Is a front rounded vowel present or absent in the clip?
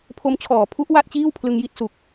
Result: absent